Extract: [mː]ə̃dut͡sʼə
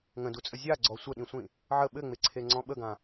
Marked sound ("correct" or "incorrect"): incorrect